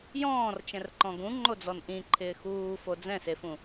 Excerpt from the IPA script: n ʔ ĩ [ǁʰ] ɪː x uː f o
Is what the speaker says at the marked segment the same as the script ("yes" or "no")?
no